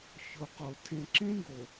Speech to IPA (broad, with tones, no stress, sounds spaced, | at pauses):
ç o˨ q o˨ tʰ ẽ˨ ǁ ẽ˦ ɡ o˨